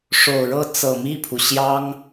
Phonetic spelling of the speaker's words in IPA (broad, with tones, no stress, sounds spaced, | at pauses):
ʂ o˨˩ ʊ̯ ɻ ɤ˥˩ t͡s ɤ˨˩ m i˥˩ pʰ u˩ ɕ j ɑ˥ ŋ